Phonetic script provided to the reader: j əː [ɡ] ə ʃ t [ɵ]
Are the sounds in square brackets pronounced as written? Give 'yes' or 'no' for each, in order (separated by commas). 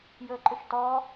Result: no, no